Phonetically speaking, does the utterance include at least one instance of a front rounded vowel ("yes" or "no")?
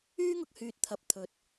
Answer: yes